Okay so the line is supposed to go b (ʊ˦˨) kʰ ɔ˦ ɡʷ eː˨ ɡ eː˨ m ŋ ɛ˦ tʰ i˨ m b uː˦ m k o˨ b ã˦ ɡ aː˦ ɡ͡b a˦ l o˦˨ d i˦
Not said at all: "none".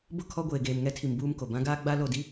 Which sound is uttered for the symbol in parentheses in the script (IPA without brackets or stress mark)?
ʊ˦˨